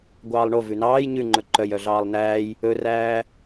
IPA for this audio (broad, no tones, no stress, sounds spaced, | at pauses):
ɡʷ ɑː lˠ ɳ o v ʉ n ɑː j ɲ ʉ ŋ͡ǃ ɵ ǃ œ j œ ɮ ɑː lˠ n æː j | ɵ r æː